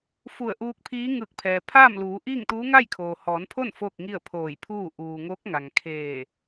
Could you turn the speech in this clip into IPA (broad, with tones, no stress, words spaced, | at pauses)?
fu˧˩ə̯ʔuː˧k̚pʰiː˧˥ ŋɯː˧˩k̚pʰɛː˩ pʰaː˥˨mluː˩˧ʔiː˥˨ŋt̪uː˧˥ ŋaː˥˨jkʰoː˩hɔː˩˧npʰo˥˨n foː˥˨k̚ŋi˥˨ə̯pʰoː˧˩jpʰuː˥˨ ʔuː˩ ŋo˧˥k̚ŋa˩ŋkʰeː˧˩